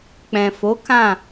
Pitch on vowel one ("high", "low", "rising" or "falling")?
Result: low